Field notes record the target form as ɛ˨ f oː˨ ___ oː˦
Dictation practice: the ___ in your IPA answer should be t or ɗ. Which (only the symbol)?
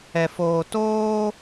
t